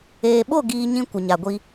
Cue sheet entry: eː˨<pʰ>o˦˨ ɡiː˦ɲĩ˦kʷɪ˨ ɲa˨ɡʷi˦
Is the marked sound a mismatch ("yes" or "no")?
yes